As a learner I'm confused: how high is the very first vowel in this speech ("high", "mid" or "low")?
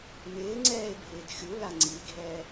high